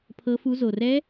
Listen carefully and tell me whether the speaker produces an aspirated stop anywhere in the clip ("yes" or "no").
yes